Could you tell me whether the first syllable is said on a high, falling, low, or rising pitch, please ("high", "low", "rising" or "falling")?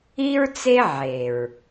high